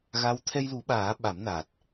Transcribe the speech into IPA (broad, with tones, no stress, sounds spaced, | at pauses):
ɣ a˧˥ w t̪ʰ ɛ˧ j l u˨˩˦ ɓ aː˨˩˦ ɓ a˨˩˦ m n a˨˩ t̚